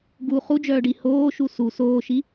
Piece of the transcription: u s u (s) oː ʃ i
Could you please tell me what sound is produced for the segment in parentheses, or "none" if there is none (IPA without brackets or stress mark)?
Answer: s